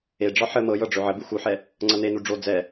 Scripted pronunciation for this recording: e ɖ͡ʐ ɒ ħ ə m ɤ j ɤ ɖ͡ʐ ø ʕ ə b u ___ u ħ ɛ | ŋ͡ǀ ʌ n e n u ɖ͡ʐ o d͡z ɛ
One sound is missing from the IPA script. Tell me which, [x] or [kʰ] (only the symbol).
x